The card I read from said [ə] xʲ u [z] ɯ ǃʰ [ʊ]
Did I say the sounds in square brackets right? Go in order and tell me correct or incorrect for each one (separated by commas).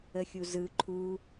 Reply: correct, correct, incorrect